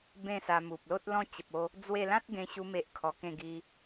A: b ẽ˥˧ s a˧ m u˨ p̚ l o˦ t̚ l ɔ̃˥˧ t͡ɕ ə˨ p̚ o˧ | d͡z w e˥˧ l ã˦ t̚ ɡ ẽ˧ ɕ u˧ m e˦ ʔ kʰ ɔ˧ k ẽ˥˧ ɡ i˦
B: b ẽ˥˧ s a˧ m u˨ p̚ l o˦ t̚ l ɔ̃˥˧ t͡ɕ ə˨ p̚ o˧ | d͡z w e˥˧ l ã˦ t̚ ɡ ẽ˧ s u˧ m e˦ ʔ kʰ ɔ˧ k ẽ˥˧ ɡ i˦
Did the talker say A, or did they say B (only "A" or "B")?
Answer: A